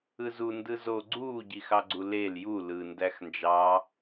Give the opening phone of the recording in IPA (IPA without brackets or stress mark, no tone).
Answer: ɯ